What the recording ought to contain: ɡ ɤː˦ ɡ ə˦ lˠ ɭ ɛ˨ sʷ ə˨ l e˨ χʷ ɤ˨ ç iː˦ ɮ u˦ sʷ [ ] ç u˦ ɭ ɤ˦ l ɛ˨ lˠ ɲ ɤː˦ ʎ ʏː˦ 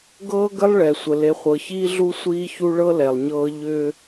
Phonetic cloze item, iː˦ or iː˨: iː˦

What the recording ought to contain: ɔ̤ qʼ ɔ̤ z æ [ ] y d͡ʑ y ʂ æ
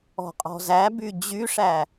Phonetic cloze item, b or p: b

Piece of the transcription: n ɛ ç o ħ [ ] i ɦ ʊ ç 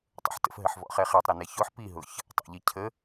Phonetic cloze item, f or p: p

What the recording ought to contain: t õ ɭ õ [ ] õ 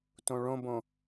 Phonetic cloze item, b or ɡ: b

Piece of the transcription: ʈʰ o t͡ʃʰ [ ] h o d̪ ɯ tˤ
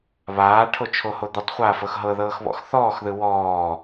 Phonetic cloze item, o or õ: o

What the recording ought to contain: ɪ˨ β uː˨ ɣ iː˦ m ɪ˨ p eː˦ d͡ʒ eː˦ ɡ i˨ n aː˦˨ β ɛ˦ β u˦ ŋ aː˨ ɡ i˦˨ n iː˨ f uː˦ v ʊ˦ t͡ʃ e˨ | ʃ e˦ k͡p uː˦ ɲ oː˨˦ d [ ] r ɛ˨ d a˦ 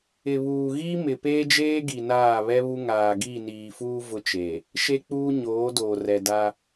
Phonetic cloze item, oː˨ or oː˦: oː˨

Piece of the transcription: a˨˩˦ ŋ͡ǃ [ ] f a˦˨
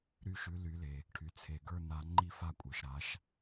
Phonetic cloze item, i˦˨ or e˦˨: i˦˨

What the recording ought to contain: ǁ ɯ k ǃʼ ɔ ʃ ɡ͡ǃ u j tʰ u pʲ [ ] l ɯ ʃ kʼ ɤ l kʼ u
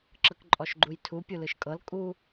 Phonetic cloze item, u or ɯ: u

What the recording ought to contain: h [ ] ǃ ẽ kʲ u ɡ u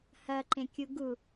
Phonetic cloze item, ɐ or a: ɐ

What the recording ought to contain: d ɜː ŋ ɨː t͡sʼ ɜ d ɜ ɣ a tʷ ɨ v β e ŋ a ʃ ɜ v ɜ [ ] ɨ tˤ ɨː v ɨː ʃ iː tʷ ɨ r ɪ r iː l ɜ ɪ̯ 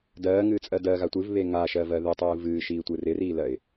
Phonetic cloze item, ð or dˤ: ð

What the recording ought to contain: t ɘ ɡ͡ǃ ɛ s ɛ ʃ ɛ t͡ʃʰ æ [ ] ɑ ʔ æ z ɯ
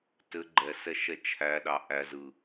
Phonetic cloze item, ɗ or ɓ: ɗ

